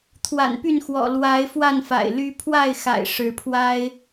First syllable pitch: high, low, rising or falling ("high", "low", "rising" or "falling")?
low